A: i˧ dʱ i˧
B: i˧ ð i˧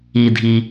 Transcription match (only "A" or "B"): A